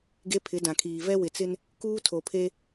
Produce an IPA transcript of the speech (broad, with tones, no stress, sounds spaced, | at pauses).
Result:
ɡ e˦ pʰ ɪ˨˦ d ã˨ kʰ iː˨ v ɛ˦ w ɪ˨ t͡s ɪ˦ n | k uː˦ tʰ o˨ pʰ e˦